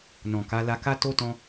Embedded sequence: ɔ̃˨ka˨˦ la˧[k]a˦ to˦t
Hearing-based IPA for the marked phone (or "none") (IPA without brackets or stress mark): k